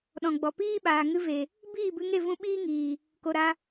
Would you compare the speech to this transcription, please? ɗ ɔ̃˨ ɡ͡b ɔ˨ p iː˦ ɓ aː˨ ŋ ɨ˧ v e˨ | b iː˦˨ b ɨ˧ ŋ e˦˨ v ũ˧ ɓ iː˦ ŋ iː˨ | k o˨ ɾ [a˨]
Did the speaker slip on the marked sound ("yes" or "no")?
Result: yes